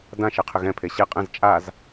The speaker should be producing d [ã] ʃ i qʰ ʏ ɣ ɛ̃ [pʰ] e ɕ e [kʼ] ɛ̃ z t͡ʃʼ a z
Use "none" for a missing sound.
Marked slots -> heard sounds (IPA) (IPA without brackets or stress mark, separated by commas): ã, pʰ, qʼ